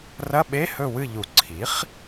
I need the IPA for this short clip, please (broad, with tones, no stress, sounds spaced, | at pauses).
r ɐ˧˥˧ ɓ e˧˥˧ h ɵ˦˨ w ɨ˦˨ ʎ u˨˩˦ ǀʰ i˩˥ χ